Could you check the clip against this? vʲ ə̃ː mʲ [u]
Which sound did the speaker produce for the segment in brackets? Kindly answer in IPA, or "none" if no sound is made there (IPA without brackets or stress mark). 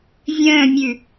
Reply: ʉ